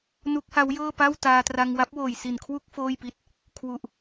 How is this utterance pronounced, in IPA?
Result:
n u˦˥ k̚ h a˦˥ w j ɤː˥˩ p a˥˩ w t aː˧ t r a˧ ŋ w a˦˥ p̚ w oː˨˩ j s i˨˩ n kʰ w u˥˩ k̚ f oː˥˩ j p i˥˩ t̚ | kʰ w u˨˩ ʔ

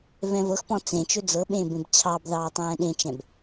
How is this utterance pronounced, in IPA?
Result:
v ɛ̃ v ɤ x p ɔ̃ t͡s ẽ t͡ʃ ɵ d͡z ɤ ɓ ẽː b ẽ b t͡ɕʰ ɑ b ð ɑː tˤ ɛ̃ː ɗ ẽ t͡ʃ ɛ̃ b

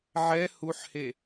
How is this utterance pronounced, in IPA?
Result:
ʕ ɛ h u ħ h e

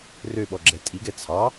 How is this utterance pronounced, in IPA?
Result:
r ø ɓ ɔ ɡ͡ǁ ɛ tʼ i ɡ ɛ t͡sʰ ɑ

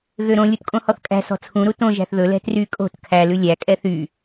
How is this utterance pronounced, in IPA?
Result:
ɣ ø ɾ õ lʲ u t kʼ õ h ɔ θ kʼ æ̤ s ɔ̤ t͡sʰ ũ ɾ u t õ ʒ æ̤ θ ð ɵ l ɛ̤ t r y kʼ o̤ t kʰ æ l ʉ lʲ æ kʼ ɛ θ y

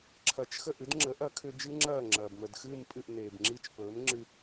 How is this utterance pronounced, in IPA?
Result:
ǁʰ ɐ˩˥ t͡ʃ x ə˥˩ ʔ ɨ˥ d ŋ͡ǁ ə˩˥ ʔ ɐ˩˥ kʰ ʏ˧ d͡ʒ ɨː˥ ŋ͡ǁ ɐː˥˩ ŋ͡ǁ ɐː˩ b m ə˩ d x ɨː˥˩ m pʼ ɨ˥˩ ʔ n eː˩ b ŋ͡ǁ i˥˩ t͡ʃ p ɵː˩˥ m ŋ͡ǁ ɨ˧

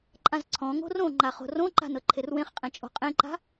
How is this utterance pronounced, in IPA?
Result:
ǃʼ ã z ǀʰ ɔ̃ ŋ o̤ r õ ŋ͡ǃ a χ o̤ r õ ǃ a̤ n ɤ ǃʰ e r w ẽ χ qʼ ẽ t͡ʃʼ o̤ qʼ ẽ ǃ a̤

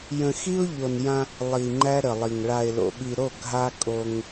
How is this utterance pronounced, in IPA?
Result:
j ə̃˨ x i˦ ʊ̯ ʎ o˨ n j ã˦ | lˠ i˨ ŋ͡ǃ æ˦ ɾ ə˨ lˠ i˨ ŋ ɭ a˨ ɪ̯ l o̰˨ ɓ i˨ ɾ o˦˨ ɡʱ a˦ kʼ o˦ ŋ

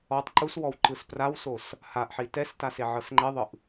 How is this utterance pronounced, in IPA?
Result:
ɔ tˤ ǃ u s w ɔ w ǃ ɯ s p r a w s o s | h a ʔ ħ i t ɛ s t a s e ʕ ɤ s ŋ͡ǃ e ðˤ ɯ ʔ

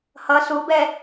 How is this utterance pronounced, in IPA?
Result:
h ʌ s u b ɛ

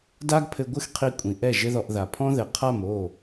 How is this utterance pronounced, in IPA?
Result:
d a˦ ɡ pʰ ɘ˧ ɡʷ ɨ˦ x qʰ i˧ kʷʼ ĩ˨ ʔ ɛ˦˨ ʒ ɘ˦ ð ɔ˧ ʔ ð a˨ pʰ ɔ̃˦ ð ɘ˨ qʰ a˦˨ m o˦˨

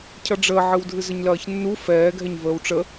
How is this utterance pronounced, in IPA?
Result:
cʰ ʌ ɖ͡ʐ əː ʕ ɨ w dʱ ɨ z ə ɲ l ɐː ç nː u f ɛː ɡʱ ɛ ɲ v əː w ʈ͡ʂ ə

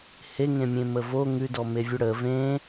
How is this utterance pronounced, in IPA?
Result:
h e ŋ ẽ mʲ ẽ m ə v o ŋ ʉ d ɔ m e vʲ ʉ ɽ ə v ẽ

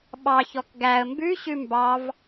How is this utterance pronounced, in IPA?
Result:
ɓ ɑ ç ɔ k ɡ æ ə̯ m b ʉ ɕ ʉ m b ɑ v

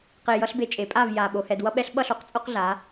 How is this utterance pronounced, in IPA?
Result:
q e˧ j ʌ˦ ɬ b e˧ t͡ʃʼ e˨˦ pʼ a˦˨ v j a˨ ɓ o˧ h ɛ˧ d w ʌ˧ ɓ ɛ˧ ɬ ɓ ʌ˦˨ ɬ o˦ q t͡sʼ o˦ q ɮ a˨˦

